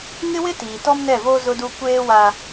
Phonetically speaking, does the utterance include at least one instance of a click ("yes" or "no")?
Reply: no